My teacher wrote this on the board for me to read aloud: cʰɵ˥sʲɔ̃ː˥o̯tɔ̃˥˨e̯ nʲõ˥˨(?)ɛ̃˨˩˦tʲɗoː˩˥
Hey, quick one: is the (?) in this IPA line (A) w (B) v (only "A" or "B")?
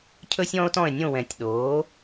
A